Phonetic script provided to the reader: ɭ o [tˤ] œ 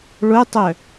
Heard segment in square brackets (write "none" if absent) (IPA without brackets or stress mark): tˤ